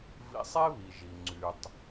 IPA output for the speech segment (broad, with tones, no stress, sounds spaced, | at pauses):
v ḭ˨ sˤ e˦ β i˩ ʒ i˩ ŋ͡ǀ y˩ tˤ